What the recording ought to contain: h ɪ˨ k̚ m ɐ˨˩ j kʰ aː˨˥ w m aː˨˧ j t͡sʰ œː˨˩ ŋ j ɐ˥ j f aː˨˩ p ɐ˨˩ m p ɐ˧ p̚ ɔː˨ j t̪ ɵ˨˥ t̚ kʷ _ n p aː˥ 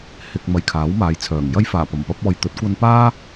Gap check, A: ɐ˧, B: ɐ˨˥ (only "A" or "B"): A